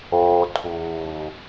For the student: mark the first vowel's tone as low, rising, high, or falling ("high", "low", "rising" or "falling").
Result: low